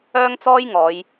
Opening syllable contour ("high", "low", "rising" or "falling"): high